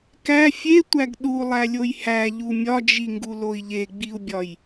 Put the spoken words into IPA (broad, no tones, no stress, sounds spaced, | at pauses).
k æ fʲ e tʷ æ ɡ ɗ u lˠ æ lʲ o j h æ ʎ u mʲ ɒ d͡ʒ i ŋ ɡ u l o i̯ ʎ e ɡ͡b i u̯ bʲ ɒ j